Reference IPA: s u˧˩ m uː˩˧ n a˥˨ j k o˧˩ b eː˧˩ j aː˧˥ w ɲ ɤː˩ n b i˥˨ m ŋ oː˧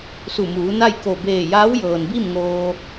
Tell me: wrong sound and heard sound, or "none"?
ɲ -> j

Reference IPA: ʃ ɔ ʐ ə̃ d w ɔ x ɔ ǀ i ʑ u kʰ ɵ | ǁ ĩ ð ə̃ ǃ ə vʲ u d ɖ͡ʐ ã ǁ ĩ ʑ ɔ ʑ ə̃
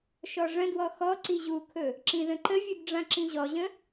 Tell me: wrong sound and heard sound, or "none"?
none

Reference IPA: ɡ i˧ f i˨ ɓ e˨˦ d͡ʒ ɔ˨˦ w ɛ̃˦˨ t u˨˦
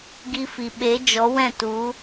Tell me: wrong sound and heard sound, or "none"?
none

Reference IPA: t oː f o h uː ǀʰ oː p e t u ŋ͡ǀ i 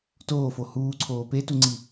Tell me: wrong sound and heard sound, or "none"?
none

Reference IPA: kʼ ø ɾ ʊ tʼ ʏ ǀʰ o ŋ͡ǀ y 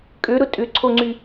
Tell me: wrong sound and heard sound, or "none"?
none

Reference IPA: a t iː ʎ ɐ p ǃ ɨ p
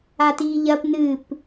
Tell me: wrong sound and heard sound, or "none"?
ǃ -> n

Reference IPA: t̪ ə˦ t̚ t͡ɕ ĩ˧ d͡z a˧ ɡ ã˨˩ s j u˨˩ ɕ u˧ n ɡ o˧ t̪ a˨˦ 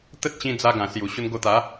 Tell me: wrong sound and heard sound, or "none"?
none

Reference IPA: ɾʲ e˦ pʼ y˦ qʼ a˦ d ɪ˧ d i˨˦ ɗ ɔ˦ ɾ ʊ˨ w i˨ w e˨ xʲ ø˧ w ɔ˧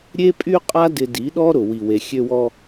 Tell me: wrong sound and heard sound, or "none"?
none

